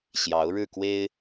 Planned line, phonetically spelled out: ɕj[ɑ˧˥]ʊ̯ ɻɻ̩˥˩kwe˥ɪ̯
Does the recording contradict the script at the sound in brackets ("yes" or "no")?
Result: no